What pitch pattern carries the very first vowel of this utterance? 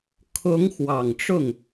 rising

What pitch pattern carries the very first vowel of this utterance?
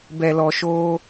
low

